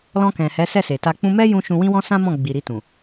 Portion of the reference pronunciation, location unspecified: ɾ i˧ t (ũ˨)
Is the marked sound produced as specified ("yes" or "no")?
yes